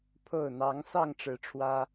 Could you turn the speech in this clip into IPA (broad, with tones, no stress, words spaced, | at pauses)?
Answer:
pʰo˥˨ʊ̯ n̪ɑ˨˦ŋ sɑ˥˨ŋʈ͡ʂɻ̩˨˦ʈ͡ʂʰwä˦